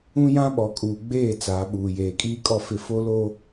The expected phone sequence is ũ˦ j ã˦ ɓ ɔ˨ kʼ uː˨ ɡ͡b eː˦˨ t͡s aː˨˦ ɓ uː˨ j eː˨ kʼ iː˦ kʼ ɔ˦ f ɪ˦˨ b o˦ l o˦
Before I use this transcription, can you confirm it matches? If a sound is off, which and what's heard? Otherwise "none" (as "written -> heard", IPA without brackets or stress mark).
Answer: b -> f